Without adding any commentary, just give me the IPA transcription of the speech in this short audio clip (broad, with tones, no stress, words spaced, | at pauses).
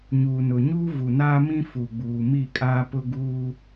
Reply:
ɲuː˨nʊ˨ɲuː˦ vu˨naː˦mĩ˦ fu˨ɡ͡buː˨ mi˦˨kʼaː˦pʊ˦ ɡuː˦